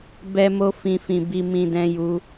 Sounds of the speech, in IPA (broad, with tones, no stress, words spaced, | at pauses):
bɛ˧mo˧fĩ˨ fĩ˨ bi˧mĩ˧dɛ̃˧ju˧